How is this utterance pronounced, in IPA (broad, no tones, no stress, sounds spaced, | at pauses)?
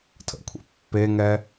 tʰ ə̰ kʷʰ ḛ pː e ŋ ɛ